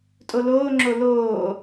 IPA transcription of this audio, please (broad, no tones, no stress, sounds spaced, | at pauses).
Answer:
tʼ o l oː ŋ͡ǁ o l oː